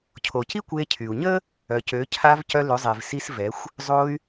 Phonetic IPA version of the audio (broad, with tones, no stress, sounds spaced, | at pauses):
cʰ o˩ c i˥ kʷ e˧ cʰ y˩ u̯ ɲ ə˥ | œ˩ c ø˩˧ cʰ a˧ v c œ˧ l ø˩˧ zˤ e˩ v s i˧ s v ɛ˩˧ xʷ | zˤ o˧ y̯